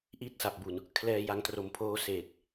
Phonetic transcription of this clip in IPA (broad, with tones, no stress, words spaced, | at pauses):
ʔi˥˩t̚sa˨˩p̚bu˨˩n | kʰlɛː˧ja˧ŋtro˨˩m pʰoː˦˥seː˨˩t̚